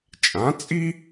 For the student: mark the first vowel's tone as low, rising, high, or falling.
rising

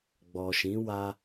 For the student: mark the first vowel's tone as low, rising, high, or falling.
low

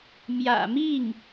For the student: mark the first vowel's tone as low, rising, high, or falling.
low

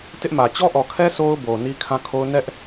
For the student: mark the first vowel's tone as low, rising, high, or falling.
high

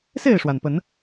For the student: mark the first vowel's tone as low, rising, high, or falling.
falling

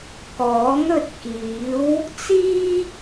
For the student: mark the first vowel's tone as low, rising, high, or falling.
rising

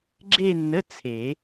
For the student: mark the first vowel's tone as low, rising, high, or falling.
falling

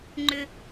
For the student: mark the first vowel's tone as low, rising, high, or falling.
low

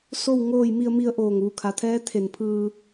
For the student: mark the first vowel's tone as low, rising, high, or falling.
falling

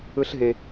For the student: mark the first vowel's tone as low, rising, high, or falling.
high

